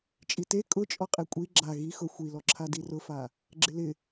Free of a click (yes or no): no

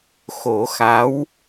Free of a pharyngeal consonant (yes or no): yes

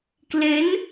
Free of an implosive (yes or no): yes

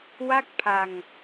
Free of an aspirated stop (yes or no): no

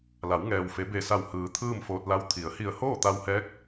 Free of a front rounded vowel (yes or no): yes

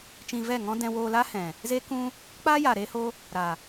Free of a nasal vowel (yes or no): no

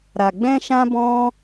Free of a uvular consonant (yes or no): yes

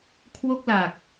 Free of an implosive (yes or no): yes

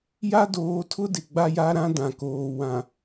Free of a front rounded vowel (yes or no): yes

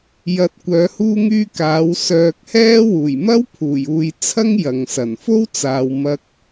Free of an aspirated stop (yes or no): no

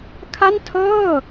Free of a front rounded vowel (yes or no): yes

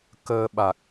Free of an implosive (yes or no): no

